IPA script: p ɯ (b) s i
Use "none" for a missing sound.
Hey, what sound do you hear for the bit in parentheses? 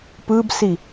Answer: b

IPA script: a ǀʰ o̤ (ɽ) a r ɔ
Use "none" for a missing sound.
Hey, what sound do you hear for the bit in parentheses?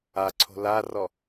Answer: l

